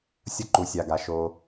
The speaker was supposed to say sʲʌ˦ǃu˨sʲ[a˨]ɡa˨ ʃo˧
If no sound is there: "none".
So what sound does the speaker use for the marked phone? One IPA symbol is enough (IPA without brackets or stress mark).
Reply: a˨